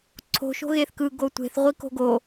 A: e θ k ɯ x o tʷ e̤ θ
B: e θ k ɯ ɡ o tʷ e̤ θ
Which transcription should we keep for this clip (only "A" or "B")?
B